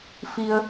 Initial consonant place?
labial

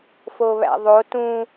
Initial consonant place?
labial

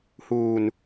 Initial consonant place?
glottal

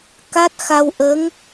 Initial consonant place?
velar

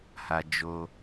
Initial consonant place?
glottal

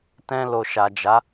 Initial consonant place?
alveolar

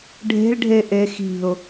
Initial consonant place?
retroflex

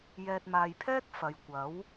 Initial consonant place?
palatal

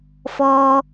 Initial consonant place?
labial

